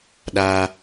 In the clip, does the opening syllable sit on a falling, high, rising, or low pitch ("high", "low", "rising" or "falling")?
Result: high